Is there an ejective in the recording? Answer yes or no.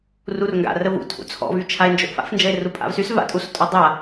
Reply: yes